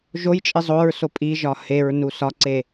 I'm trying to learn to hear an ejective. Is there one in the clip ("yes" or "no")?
yes